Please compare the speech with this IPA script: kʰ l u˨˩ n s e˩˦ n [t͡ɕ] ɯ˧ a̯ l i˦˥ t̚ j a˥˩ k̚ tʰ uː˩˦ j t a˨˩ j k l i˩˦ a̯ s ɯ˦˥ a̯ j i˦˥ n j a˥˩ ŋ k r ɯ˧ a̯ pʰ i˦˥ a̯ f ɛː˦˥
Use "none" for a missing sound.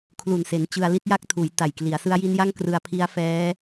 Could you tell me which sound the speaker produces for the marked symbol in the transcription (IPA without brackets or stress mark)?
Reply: t͡ɕ